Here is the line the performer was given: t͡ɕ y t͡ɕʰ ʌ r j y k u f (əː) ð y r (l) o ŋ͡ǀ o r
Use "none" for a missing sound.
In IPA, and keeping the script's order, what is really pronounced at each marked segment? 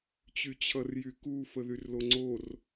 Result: ə, l

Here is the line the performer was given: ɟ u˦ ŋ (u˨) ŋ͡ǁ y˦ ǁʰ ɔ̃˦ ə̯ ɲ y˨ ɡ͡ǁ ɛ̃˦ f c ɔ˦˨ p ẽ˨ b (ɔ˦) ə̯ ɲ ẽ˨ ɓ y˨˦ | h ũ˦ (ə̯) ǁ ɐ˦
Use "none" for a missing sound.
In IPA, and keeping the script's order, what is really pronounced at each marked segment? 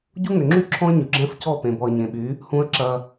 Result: ʏ˨, ɔ˨, ə̯

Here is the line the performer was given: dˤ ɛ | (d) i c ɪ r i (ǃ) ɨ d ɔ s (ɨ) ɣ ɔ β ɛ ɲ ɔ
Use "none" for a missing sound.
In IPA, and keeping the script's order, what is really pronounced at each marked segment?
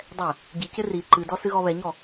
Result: ɟ, ǃ, ɨ

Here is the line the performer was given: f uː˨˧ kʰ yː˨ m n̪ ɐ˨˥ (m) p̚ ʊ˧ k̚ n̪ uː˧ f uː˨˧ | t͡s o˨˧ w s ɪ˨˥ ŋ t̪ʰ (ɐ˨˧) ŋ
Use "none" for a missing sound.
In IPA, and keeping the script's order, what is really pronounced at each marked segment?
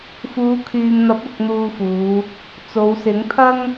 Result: none, ɐ˥

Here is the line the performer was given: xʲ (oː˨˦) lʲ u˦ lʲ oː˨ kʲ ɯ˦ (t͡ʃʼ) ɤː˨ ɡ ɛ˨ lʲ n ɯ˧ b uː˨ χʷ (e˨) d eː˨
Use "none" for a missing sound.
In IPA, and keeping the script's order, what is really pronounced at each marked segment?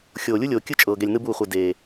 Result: oː˨, t͡ʃʼ, e˨

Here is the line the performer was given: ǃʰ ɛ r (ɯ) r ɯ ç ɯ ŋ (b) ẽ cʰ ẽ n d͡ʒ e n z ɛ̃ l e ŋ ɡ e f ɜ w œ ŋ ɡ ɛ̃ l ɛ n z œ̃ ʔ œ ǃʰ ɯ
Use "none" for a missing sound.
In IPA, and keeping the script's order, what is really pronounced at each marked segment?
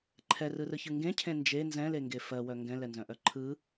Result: ɯ, ɡ

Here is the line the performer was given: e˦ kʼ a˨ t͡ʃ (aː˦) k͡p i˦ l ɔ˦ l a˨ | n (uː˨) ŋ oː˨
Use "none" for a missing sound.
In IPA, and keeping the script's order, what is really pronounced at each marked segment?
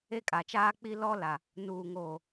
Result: aː˦, uː˨

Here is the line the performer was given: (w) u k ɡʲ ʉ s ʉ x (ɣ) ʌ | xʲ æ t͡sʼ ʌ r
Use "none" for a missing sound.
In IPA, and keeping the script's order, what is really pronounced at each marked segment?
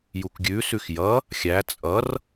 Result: j, j

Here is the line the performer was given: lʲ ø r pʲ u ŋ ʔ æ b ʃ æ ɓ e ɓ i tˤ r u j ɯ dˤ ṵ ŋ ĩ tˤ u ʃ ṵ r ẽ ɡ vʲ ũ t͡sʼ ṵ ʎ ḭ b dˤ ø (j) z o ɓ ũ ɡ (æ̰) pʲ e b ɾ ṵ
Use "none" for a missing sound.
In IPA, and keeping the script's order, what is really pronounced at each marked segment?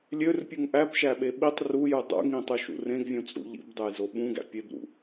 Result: j, æ̰

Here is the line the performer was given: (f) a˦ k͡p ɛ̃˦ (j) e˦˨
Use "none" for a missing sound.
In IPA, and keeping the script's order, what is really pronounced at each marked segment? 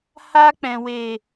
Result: h, w

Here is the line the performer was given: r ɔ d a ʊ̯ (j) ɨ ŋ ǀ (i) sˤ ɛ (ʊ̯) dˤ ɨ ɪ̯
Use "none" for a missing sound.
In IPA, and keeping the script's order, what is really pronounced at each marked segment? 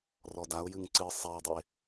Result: j, ɨ, ɪ̯

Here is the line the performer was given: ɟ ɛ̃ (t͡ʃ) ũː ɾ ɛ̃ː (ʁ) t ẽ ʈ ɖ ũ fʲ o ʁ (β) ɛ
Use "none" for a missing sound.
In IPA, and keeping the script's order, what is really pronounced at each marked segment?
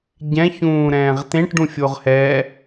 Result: ç, ʁ, h

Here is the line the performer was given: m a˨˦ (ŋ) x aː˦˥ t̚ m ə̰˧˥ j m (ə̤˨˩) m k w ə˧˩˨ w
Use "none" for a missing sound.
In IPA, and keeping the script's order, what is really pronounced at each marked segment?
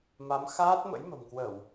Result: m, ə̤˨˩

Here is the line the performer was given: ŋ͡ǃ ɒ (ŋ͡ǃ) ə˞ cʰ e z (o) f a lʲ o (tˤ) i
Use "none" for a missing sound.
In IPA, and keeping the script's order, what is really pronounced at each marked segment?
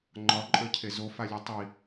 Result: ǃʼ, o, tˤ

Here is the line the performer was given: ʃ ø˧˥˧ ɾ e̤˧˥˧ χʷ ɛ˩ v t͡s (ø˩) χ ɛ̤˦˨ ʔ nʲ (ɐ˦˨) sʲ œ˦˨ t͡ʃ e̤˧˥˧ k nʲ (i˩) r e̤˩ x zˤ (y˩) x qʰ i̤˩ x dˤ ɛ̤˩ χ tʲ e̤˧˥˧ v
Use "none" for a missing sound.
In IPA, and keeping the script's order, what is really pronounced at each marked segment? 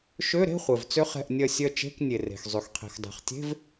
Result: ø˥, ɐ˦˨, e˩, y˩

